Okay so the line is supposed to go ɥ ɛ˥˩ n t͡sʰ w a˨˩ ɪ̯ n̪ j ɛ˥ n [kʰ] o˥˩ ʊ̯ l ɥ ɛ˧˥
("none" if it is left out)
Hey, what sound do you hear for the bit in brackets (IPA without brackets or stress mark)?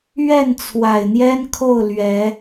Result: kʰ